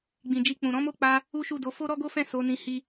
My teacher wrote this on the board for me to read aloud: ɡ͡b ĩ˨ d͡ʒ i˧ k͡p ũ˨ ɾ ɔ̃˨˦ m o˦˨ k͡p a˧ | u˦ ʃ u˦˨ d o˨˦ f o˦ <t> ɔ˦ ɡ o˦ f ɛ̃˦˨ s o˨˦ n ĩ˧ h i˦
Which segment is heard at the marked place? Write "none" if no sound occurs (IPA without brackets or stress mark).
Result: ɾ